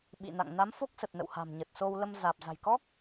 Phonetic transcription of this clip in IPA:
ɓ ḭ˧˨ n a̰˧˨ ŋ n a˨˦ m f o˦˥ k̚ s ə˨˩ t̚ n ə̰˧˨ w h a̤˨˩ m ɲ ə˨˩ t̚ s o˧ w l ə˧ m z aː˨˩ p̚ z a̤˨˩ j k ɔ˦˥ k̚

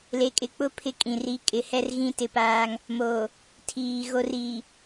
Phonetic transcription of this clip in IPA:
l e˨ kʼ ɪ˨ k͡p ʊ˦ pʰ ɪ˦ kʼ ĩ˨ r i˦ kʼ ɪ˨ h ɛ˦ r ɣ ĩ˦ t ɪ˦ p aː˦ ŋ | m oː˨ | tʰ iː˨ ɣ o˨ r iː˨

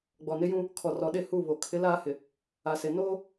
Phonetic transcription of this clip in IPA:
ɡ͡b ɔ˨ n ɪ˦ j ũ˦ | kʰ ɔ˨ r ɔ˨ ɗ e˦˨ h u˦˨ β o˨ kʰ ɪ˨˦ l aː˦ h ɪ˨ | a˨ s e˨ n oː˦

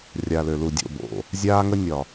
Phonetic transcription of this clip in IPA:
rʲ a˨ l ø˨ l u˨ dʲ o̰˦˨ b o̰˨ | zʲ aː˦ ŋ ə˦ nʲ ɒ˨

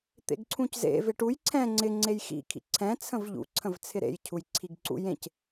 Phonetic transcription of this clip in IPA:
t̪ ḛ ɡ ǀʰ ũ c z ḛ v ɪ ʈ u j ǀʰ ɛ̃ ŋ͡ǀ ɪ ŋ͡ǀ e j x ḭ kʰ ḭ ǀʰ ɛ̃ t͡sʰ ə̃ v ʎ ṵ ǀʰ ə̃ v t͡sʰ ɪ ɾ ḛ j cʰ u j ǀʰ i ɡ ǀ ṵ j ẽ c

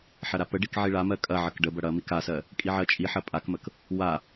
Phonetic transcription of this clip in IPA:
ħ ɐ ɾ a p ə ɖ i k ʕ i ɭ a m ɜ kʼ ɐ ʕ ə k ɖ ə b ɐ ɽ ɐ m i k a s ɜ | kʼ i ʕ ɜ t͡ʃʼ i ħ ɐ pʼ a k m ə k | w a

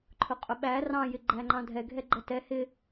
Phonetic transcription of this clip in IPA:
ǃʰ ʊ qʼ ʊ ɓ æ r ɑ̃ j ɪ ɡ͡ǃ æ ŋ͡ǃ ɑ̃ dʱ ɛ ɡʱ ɛ ɡ͡ǃ ʌ t ɛ h ɪ

